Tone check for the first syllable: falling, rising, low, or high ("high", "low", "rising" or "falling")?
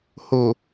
low